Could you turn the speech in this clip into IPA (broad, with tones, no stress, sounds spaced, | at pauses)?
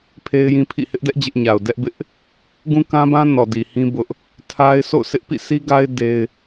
pʰ e˦ ɪ̯ j ĩ˦ pʰ ḭ˦˨ h ɪ˦ ʔ d ɛ˦ ʔ d͡ʑ ɪ˦ ʔ ɲ a˨ ʊ̯ d ɛ˦ ʔ b ɪ˦ ʔ | ɡ ũ˦ k ã˦ b ã˦ n ɔ˨ d i˨ h ĩ˦ b ʊ˦ ʔ | tʰ a˦ ɪ̯ sʰ o̰˦˨ ʊ̯ s ɪ˦ ʔ p ḭ˦˨ s i˦ ɡ a˦ ɪ̯ d e˦ ɪ̯